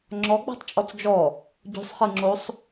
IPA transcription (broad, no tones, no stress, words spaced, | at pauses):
ŋ͡ǁɔɡ͡ba̤tˤt͡ʃʼɔt͡s d͡ʒɔ | ɟo̤sˤχɯŋ͡ǁosˤ